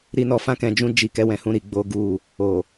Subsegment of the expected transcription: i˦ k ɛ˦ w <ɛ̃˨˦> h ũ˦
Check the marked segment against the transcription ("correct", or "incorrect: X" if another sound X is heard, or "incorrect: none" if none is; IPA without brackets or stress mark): incorrect: ɛ̃˧